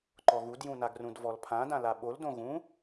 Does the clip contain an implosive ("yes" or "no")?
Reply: yes